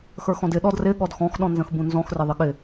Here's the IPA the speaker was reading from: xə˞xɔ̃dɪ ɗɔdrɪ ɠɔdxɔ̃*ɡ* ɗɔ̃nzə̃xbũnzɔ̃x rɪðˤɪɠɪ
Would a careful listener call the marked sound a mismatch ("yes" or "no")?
yes